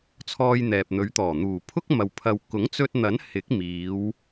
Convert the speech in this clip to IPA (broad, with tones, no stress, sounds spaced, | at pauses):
t͡sʰ ɔː˧ j n̪ ɛː˨ p̚ n̪ ɵ˨˧ ɥ t̪ ɔː˨˩ n̪ uː˨˩ pʰ ʊ˥ k̚ m ɐ˨ w pʰ ɐ˨ w k ʊ˨˥ ŋ t͡s ɵ˧ t̚ n̪ ɐ˨˥ n h ɪ˨˥ k̚ m iː˨˧ w